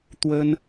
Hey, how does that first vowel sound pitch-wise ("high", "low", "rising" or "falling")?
high